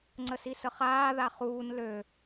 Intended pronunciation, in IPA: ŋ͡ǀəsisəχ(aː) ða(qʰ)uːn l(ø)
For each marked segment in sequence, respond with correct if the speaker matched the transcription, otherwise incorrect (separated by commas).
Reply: correct, incorrect, correct